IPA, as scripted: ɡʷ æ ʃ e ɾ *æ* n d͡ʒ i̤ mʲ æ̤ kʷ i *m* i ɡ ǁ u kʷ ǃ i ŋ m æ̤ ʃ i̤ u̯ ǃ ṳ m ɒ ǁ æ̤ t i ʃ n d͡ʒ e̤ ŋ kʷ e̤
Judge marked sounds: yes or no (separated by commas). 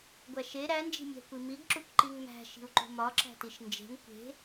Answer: yes, yes